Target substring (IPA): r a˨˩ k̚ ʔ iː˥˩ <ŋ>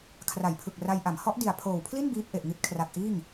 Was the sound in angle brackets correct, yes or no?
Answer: yes